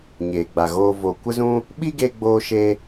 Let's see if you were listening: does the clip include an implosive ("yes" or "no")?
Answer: yes